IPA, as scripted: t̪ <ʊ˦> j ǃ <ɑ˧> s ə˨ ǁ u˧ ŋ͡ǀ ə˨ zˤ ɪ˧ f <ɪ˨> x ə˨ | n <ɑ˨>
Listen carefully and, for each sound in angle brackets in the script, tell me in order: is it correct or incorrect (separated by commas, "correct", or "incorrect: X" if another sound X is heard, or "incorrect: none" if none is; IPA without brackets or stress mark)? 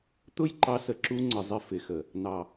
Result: correct, correct, correct, correct